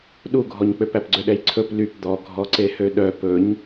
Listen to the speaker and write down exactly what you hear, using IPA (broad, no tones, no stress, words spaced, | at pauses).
ɗuɡʱɔɲk͡pøp æpɡ͡ǀøɗɛjǀʰɵp lyp d̪ɔɡʱɔǀehø ɗœ pɵɲ